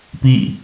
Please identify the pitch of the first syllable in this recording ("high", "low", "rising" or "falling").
falling